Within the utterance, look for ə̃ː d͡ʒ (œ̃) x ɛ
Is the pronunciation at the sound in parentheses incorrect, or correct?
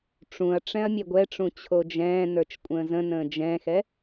incorrect